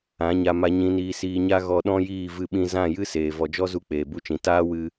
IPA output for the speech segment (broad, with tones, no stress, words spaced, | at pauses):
ã˨˦ɲa˧ma˧ ɲĩ˨niː˨siː˨ɲa˧ ɣɔ˧ɗɔ̃˦jiː˦˨ vɨ˧ɓĩ˧zã˦˨ jɨ˦seː˨ vɔ˨d͡ʒɔ˦zu˧ k͡peː˨bu˦t͡ʃĩ˨ taː˦wɨ˧